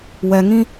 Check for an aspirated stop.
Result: absent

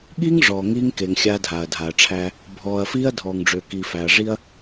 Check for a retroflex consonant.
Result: present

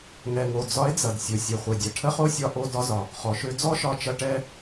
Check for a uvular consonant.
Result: present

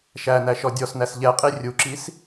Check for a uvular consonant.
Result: present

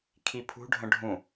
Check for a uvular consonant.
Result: absent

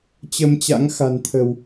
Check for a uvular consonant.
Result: absent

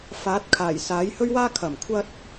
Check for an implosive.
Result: absent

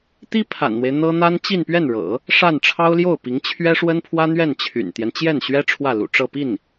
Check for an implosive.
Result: absent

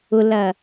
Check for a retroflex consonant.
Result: absent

